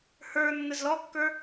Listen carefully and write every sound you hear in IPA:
h ə˞ nː ə z l ɔ kː ə˞

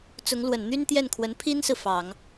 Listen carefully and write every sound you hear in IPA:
t͡s ʊ˧˥ ŋ l w ə˨˩ n n̪ y˥ n t̪ j ɛ˥˩ n kʰ w ə˧˥ n pʰ i˥ n s ɹ̩˨ f ɑ˨˩˦ ŋ

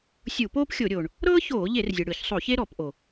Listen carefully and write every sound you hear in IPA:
sʲ u˧˩˧ p oː˥ p xʲ o˧˩˧ ɾʲ oː˩ ɳ | ɾ ɤː˥ ç oː˧˩˧ ʎ e˧˩˧ r zʲ ɯ˩ ɽ ɯ˧˩˧ ç sˤ o˧˩˧ ç e˥ ɾ ɔ˧˩˧ p ʔ o˩

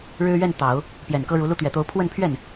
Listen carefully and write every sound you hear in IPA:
ɻ ɻ̩˥ ɥ ɛ˥˩ n t̪ ɑ˨˩˦ ʊ̯ | p j ɛ˨˩ n k ɤ˥ ɻ u˧˥ l u˥˩ t̪ ɥ ɛ˨˩ t̪ o˧˥ ʊ̯ pʰ w ə˥˧ n pʰ ɥ ɛ˥˩ n

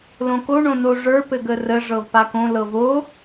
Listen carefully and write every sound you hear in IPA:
l õ k o ɳ õ n o ʐ ə˞ p ɘ ɡ ə r ə ʐ ɤ v p a k õ l ɤ v o

